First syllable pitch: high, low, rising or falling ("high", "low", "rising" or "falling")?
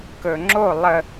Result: low